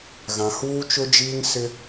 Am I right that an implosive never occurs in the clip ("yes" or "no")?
yes